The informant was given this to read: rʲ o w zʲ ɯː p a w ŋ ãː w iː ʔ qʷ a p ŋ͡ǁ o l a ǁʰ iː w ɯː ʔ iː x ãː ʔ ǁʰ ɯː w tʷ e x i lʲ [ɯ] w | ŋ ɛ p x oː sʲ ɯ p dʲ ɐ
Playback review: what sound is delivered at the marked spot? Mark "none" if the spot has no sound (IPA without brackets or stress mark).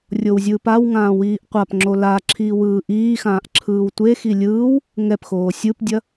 ɯː